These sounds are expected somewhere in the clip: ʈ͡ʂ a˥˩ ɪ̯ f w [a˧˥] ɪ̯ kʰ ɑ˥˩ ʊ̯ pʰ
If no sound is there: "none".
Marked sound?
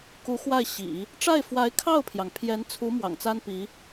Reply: a˧˥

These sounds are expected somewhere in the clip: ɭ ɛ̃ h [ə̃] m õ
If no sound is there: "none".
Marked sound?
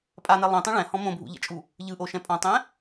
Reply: ɔ̃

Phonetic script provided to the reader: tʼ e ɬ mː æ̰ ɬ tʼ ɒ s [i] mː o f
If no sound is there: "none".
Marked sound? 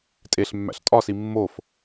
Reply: i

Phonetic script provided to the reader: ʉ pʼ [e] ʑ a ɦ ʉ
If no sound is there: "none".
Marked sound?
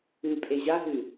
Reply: e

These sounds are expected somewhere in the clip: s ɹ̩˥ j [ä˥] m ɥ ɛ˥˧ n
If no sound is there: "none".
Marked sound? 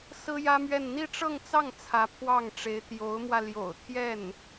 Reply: ä˥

